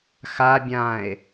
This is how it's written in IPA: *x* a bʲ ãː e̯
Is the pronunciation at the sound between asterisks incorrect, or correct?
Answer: correct